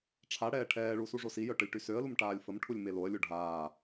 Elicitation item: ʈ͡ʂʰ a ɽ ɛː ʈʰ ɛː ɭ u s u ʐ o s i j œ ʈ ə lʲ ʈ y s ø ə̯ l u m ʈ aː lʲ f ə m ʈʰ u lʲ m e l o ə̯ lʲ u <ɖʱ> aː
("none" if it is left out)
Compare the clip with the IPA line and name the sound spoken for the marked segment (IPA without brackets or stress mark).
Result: ɖʱ